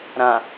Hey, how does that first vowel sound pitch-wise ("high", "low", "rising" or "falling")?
low